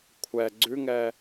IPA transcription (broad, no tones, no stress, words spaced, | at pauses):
kʷʰɛ ɡ͡ǀʉŋɛː